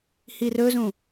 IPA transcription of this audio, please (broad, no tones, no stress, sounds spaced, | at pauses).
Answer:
h i r ɵ z ũ